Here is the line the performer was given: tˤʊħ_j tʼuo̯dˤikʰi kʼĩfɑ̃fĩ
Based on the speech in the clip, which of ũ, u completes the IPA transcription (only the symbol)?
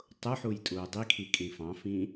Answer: u